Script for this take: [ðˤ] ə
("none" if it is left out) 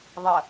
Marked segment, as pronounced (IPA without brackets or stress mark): ðˤ